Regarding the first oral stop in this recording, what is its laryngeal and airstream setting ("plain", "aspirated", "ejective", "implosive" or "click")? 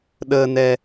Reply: implosive